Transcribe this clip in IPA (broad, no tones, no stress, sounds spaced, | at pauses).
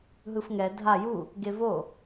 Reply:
ɦ ɯ f ŋ ɛ dʱ a j u | ɡ e v o